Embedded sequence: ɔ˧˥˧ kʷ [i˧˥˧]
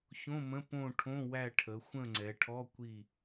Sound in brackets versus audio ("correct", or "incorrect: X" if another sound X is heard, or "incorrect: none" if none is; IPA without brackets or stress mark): incorrect: i˦˨